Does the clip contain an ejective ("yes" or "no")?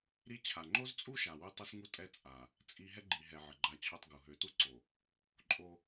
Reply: yes